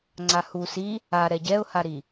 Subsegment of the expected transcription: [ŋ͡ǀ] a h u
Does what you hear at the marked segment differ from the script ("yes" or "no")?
no